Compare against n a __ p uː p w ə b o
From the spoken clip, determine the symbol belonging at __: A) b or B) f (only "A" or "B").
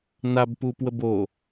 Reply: A